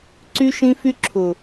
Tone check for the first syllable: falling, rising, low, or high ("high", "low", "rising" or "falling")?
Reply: high